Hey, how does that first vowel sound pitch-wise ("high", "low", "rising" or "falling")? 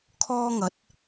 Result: high